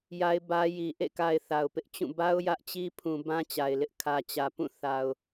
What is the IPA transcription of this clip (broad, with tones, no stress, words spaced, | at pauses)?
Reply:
ja˦ɪ̯bä˦ ji˨ ʔḛ˦˨ka˨ɪ̯ θa˨ʊ̯pɪ˦ʔt͡ɕũ˦˨ ba˦ʊ̯ jä˦ʔt͡ɕi˦pʰũ˨ bã˦t͡ɕa˨ɪ̯lɪ˦ʔ kʰä˨t͡ɕä˨pũ˦˨ θa˨ʊ̯